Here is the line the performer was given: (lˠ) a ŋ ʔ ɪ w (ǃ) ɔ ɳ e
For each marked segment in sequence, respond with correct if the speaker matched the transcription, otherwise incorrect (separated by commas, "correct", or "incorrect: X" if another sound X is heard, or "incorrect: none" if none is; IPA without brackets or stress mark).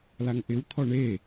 incorrect: l, incorrect: t̪ʰ